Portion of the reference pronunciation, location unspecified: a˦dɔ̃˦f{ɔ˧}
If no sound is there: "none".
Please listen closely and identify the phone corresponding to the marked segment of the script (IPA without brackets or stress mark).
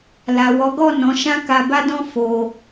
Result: o˧